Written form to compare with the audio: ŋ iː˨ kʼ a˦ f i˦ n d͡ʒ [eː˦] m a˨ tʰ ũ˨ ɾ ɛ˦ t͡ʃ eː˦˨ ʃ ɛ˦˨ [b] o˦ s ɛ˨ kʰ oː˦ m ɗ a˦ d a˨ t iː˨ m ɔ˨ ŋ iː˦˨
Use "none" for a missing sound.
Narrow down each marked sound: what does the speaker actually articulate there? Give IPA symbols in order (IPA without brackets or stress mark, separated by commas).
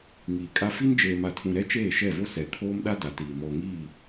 eː˨, v